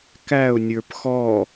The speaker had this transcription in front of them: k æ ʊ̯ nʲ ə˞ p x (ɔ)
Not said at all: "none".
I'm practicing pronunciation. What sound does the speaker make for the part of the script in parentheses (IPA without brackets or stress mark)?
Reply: ɔ